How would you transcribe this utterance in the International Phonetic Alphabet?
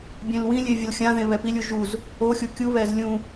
bʲ ẽ l w ĩ lʲ e vʲ ʌ l xʲ ã ð ẽ β ɛ p i lʲ u ʒ u z | o xʲ u kʲ u β ɛ z lʲ ũ

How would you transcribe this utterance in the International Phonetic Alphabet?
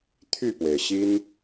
t̪ʰ y˥˩ p w e˩ ɪ̯ ɕ i˥ n

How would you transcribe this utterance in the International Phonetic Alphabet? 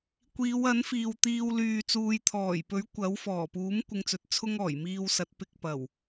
kʷ iː˨˧ w ɐ˨˥ n f iː˨ w t̪ iː˧ w l yː˧ t͡s uː˧ j t̪ʰ ɔː˨˩ j p ɵ˨˥ ɥ kʷ ɐ˨˥ w f ɔː˨˩ p uː˨˥ m kʷ ɪ˧ ŋ t͡s ɵ˨˥ t̚ t͡sʰ ʊ˥ ŋ ɔː˨˩ j m iː˧ w s ɐ˨˥ t̚ p ɪ˧ k̚ p ɐ˨˩ w

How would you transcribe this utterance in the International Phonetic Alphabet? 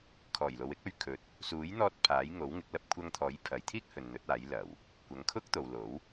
kʰ ɔː˨˩ j l o˨ w ɪ˥ k̚ ɵ˨˧ ɥ kʰ ɵ˨ t̚ | s uː˨˥ j n̪ ɔː˧ t̚ pʰ aː˨˥ j ŋ o˨˥ w ŋ ɪ˨˥ k̚ l ɐ˧ p̚ kʷʰ ɐ˧ ŋ t̪ʰ ɔː˨˥ j pʰ ɐ˨˧ j t̪ʰ iː˥ k̚ h ɵ˨ n n̪ ɵ˨˥ t̚ aː˨˥ j l ɐ˨˩ w | kʷ ɐ˨˧ ŋ kʰ ʊ˥ k̚ t̪ o˨ w l o˨˥ w

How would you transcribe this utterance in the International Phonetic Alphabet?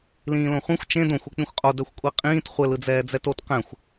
l ĩː l õ χʷ ĩ xʷ t͡ʃ ẽ d õ xʷ e k͡p ĩ xʷ qʼ o d ɛ xʷ kʷʼ i qʼ ĩː t χʷ ɘ l ɯ d͡z ɛː d͡z ɛ t o t q ɛ̃ xʷ

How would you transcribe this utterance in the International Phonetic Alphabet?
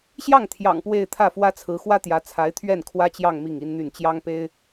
ɕ j ɑ˥˩ ŋ t̪ʰ j ɑ̰˨˩ ŋ p w e˥˧ ɪ̯ t̪ʰ ä˥˩ f w ä˥ t͡sʰ ɹ̩˧˥ x w ä˥ t̪ j ä˧˥ t͡sʰ a˧˥ ɪ̯ t̪ʰ ɥ ɛ˥˩ n kʰ w ä˥ t͡ɕ j ɑ˥˧ ŋ m i˥˩ ŋ i˥ n n̪ y˥˩ n t͡ɕ j ɑ˥ ŋ p e˥ ɪ̯

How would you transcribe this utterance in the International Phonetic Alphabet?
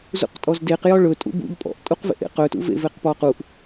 z ṵ q tʼ ɔ z d e q j ɔ ɭ ɵ tʼ ṵ b ṵ ʎ pʼ ɔ̰ ʔ tʼ u q v ḛ ʔ ḛ q ɵ t ṵ v ḛ v e q p ɔ q u ʔ

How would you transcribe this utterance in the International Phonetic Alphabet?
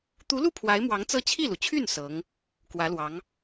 t̪ u˧˥ l u˥˩ pʰ w a˧˥ ɪ̯ m w ɑ˧˥ ŋ t͡s ɤ˥˧ t͡ɕʰ i˥˩ l u˩ t͡ɕʰ y˥˩ n s ɤ˧˥ ŋ | k w ä˧˥ l w ɑ˧˥ ŋ

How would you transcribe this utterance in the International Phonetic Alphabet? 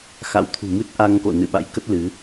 x a̰˧˥ w t̪ʰ ṳ˨˩ m ɨ˦˥ t̚ ʔ a˧ ŋ k o̰˧˨ n ɨ̰˧˨ ɓ a̰˧˥ j k ə˦˥ t̚ l ɨ˨˦

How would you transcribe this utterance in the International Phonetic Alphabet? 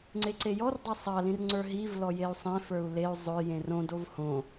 ŋ͡ǀ e ǀ e j ɔ r dˤ ə˞ sˤ ɑ l ĩ r ŋ͡ǀ ə˞ ɦ i v l ɔ j e u̯ sˤ ẽ f ə˞ u̯ l e u̯ zˤ ʊ j ẽ r õ d o v h õ

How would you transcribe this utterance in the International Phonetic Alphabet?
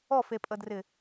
ɔ f e pʼ ə d r ɪ

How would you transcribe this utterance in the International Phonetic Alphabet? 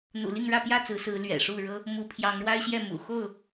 n̪ ṵ˨˩ l i˥˨ ŋ ɻ ä˥˨ p j ä˥˨ t͡s ɹ̩˨˦ s ɹ̩˨˦ l ɥ ɛ̰˨˩ ʂ u˥˨ ɻ ɤ˦ | m u˨˦ pʰ j ɑ˨˦ ŋ ɻ w a˦ ɪ̯ ɕ j ɛ˥˨ m ṵ˨˩ x o˥˨ ʊ̯

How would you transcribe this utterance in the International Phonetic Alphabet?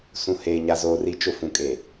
s ũ˨ h eː˨ ɲ a˨ z oː˨ r i˨˦ t͡ʃ ʊ˨ f ũ˨ kʼ e˨

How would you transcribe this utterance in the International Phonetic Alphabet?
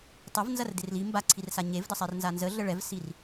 tˤ ɐ v n z ɐ r d ɪ r l i m b a ǀʰ i r s a ɲ e v d ə sˤ ɛ r n z a n z ə ɮ ə ɭ ɛ v s i r

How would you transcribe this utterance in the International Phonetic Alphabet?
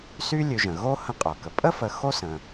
s y˦ lʲ ʉ˨ ʒ ə̃˩ ɣ o˥ h ə̃˦ qʼ o˩ k ə˩ pʼ ə˥ f ə˨ x o˦ s ə̃˩

